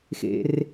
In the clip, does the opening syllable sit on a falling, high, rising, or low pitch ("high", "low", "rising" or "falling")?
low